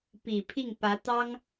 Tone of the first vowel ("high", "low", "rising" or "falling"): low